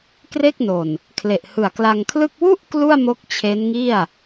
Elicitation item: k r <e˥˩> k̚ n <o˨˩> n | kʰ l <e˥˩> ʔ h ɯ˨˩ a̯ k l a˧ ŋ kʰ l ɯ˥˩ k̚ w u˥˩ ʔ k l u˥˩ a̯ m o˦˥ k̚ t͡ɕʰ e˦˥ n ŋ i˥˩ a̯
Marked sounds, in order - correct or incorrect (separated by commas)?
correct, correct, incorrect